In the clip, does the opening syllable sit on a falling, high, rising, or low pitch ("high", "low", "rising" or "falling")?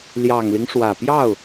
low